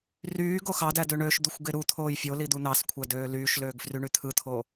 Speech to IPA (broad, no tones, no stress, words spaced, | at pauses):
ryː ɡoxɑdæ døɳøʃd̪uxʷ ɡeɾut̪ʰoːj fʲoli d̪un̪ɑskʷʰæ døːlyːʃløːɡ fryɳyt̪ʰɯt̪ʰo